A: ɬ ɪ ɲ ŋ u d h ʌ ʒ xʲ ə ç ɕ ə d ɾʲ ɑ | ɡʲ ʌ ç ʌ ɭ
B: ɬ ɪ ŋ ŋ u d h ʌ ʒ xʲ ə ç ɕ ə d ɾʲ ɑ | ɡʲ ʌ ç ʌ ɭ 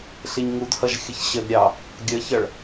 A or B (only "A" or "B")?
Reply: A